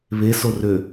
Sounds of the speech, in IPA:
β e s o r ø

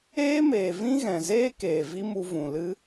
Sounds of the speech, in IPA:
eː˦ m eː˨ v ĩ˦ ɣ ɛ̃˨ z eː˦ k eː˨ v i˦ m u˧ v ũ˨ l ɨ˦

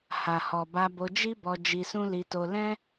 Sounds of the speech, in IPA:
h a˨ h ɔ˨ b a˧ b o˧ d͡ʒ i˦ b ɔ˧ d͡ʒ i˧ s ũ˦ l i˧ t o˧ l ɛ̃˦

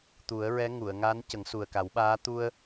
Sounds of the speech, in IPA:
t̪ u˨˩˦ ə̯ ɹ ɛ˧˥ ŋ u˨˩˨ ə̯ ŋ a˧˥ n c ə˨˩˦ ŋ s u˨˩ ə̯ k a˨˩˦ w ɓ aː˧˥ t̪ u˧ ə̯

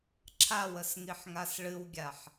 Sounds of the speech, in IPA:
ǁʰ a w ə s ŋ i ħ ŋ a s ɭ ɨ w ɡʲ a ħ

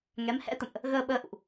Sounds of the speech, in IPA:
ŋ ɛ˨˦ m h ɛ̰˧˥ t̪ ə̰˧˨ m ʔ | ɣ əː˧ ɓ əː˧ ʔ ṵ˧˨ ʔ

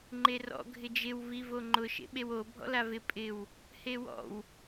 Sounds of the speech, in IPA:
ŋ͡ǃ e r ɔ̰ ɡʱ ɪ d͡ʒ ɪ w v i v o ŋ͡ǃ ʊ ʃ ḛ ɓ e w o bʱ ɔ̰ l a v ɪ pʼ ɪ w | h e w ɔ̰ w

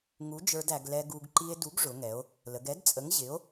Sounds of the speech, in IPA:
ŋ u˨˥ d͡ʒ ə˞˧ d æ˩˧ ɡ l ɛ˧ ɡ u˧ ɡ ǃ i˧ e̯ d u˨˥ ɡ ʐ ʊ˩˧ ŋ ɛ˩˧ o̯ | l ə˩˧ ɡ ɛ˨˥ d t͡sʼ ə˨˥ ŋ ʑ ɪ˨˥ o̯

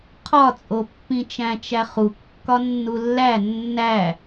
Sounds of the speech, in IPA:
qʰ ɒ t͡sʼ o pː ĩ t͡ʃ æ̃ t͡ʃ æ χ u kː ɒ nː u lː æ nː æ

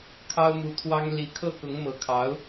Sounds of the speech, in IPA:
kʰ ɑ˥ ʊ̯ m u˧˥ t̪ʰ w ɑ˥ ŋ l i˧˥ kʰ ɤ˥˩ k ʊ˧˥ ŋ m ɤ˧˥ kʰ ɑ˧˥ ʊ̯

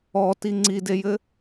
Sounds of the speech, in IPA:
ɔ t i ŋ͡ǀ i d e j ɘ

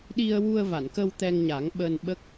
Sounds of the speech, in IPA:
ɗ i˧ ə̯ w u˧ ə̯ v a˨˩˨ n k ə˧ w t̪ ɛ˧ ŋ ɲ a˨˩˦ ŋ ɓ əː˧ n ɓ ə˦˥ k̚

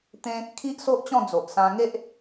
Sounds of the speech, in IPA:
t̪ ẽ˦ | kʰ i˦ ʔ s o˦ ʔ t͡ɕ ɔ̃˥˧ d͡z o˨ ʔ s ã˧ ŋ e˦ ʔ

